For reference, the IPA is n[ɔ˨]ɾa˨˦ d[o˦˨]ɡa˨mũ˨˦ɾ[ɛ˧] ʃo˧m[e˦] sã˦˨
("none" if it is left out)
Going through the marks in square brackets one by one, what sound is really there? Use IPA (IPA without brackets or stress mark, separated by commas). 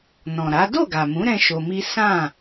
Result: ɔ̃˨, o˦˨, ɛ̃˧, i˦